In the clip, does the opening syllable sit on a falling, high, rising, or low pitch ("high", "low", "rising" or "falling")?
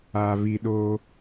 low